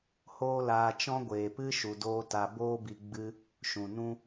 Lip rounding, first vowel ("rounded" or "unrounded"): rounded